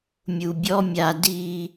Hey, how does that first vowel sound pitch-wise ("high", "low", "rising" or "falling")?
low